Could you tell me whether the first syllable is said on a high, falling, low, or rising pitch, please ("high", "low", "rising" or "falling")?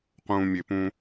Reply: low